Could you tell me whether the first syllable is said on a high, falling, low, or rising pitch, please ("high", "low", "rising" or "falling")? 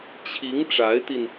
rising